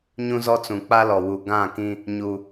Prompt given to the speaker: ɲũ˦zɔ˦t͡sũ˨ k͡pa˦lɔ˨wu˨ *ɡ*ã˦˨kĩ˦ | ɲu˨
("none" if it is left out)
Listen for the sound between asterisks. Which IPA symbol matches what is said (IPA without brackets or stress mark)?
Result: ɡ